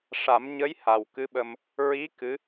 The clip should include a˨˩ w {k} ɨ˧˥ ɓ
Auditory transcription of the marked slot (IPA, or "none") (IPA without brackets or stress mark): k